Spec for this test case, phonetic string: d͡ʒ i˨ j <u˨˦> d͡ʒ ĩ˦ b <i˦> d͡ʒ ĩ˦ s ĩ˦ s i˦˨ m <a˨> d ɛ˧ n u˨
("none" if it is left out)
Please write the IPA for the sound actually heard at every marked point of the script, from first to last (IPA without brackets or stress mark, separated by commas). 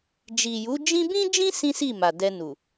u˨˦, ĩ˦, a˨